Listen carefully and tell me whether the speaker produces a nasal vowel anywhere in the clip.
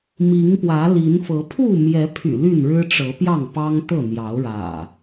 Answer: no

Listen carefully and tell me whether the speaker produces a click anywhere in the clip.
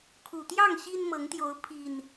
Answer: no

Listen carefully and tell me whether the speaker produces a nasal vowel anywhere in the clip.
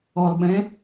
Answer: yes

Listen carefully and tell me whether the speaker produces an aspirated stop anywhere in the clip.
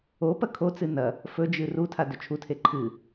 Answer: yes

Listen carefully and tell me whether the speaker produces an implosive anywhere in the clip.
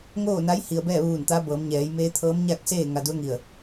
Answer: no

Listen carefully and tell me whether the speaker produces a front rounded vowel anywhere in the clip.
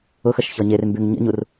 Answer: yes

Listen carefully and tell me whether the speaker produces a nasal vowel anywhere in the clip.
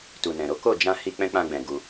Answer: yes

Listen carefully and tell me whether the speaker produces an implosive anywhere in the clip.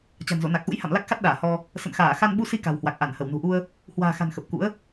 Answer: yes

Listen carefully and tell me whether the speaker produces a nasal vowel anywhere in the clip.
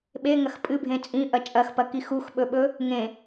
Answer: yes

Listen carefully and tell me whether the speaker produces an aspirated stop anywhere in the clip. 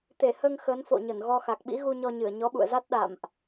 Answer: no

